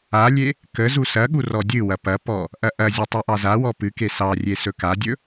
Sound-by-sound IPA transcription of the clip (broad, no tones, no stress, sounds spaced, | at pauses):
a lʲ e | k ə z u s ɐ ɠ u r ɔ dʲ ɨ w ɐ p ɐ p ɔ | ʔ ɐ ʔ ɐ zʲ ɐ tˤ ɨ ʔ ɑ z a w ɔ p ɨ k e s ɑ rʲ e s ɵ k a dʲ ɵ